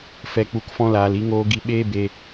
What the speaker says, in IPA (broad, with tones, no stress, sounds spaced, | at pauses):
f ɛ˨ k͡p u˨ k f ɔ̃˧ l aː˨ l i˧ ŋ oː˧ ɡ i˧ ɓ eː˦ b e˧